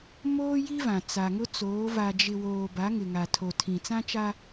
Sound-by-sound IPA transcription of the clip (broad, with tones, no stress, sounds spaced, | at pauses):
m oː˦ j i˦ v ã˨ t͡s a˨ ŋ ʊ˦ t͡s oː˨˦ v a˨ d͡ʒ ɪ˨ w oː˨ b a˨˦ ŋ ɪ˨ ŋ a˨ tʰ o˨ tʰ ĩ˨ t͡s ã˦ t͡ʃ a˦